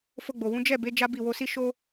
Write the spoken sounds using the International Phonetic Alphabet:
f o˧ ɡ͡b o˨ w ũ˨˦ d͡ʒ ɛ˦˨ b e˨˦ d͡ʒ a˦ b i˦˨ w o˧ s i˦ ʃ o˦

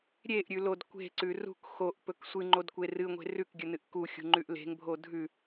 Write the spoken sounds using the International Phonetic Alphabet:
ɾʲ e ʔ ɾʲ ʉ l o d kʷ e̤ ǀ ʉ r ṳ k x o ʔ p ɵ k sʷ ɨ ŋ͡ǃ o d kʷ e r ɨ ŋʷ e̤ r ʉ k ɡʲ ɵ n ɨ ʔ k u xʲ ṳ ŋ͡ǃ ʉ ʔ l e̤ ŋ bʱ o dʱ ʉ

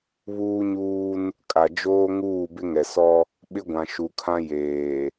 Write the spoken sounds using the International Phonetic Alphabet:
β uː˦ ɲ uː˦ n | kʼ a˨ d͡ʒ oː˦ ŋ uː˦˨ b ɪ˦ ŋ ɛ˨ s ɔ˦ | ɓ ɪ˦ ɡʷ ã˨ ʃ u˨ kʰ ã˦ j eː˨

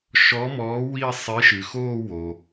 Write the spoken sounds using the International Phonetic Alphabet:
ʃ ɔ˨˥ m ɔː˨˥ w i˥˧ sˤ i˨˥ ʃ ɨ˩ x oː˥˧ w o˩

